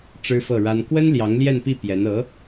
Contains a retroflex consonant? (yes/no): yes